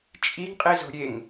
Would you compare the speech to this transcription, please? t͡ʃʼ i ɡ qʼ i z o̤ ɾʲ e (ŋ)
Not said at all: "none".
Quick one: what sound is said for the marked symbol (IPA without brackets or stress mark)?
ŋ